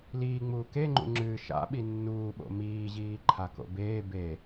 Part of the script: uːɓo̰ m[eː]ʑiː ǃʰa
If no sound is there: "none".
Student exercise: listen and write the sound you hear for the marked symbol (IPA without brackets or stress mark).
iː